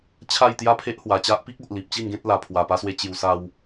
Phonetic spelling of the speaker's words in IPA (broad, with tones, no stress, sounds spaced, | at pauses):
t͡ɕʰ a˥˧ j t̪ j a˥˧ pʰ e˦ ʔ h w a˨˩ t͡ɕ a˦ ʔ p i˦ k̚ o˨ ʔ l i˨ p̚ t͡ɕ i˥˧ n ɡ ẽ˦ t̚ l a˨˩ pʰ w a˨˩ p a˧ s w e˧ t͡ɕ j u˧ s a˦ w